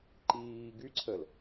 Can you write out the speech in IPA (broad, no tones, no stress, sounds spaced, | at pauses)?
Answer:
ǃ iː ɡ y ǀʰ ə l